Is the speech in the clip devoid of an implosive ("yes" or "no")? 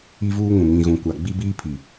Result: yes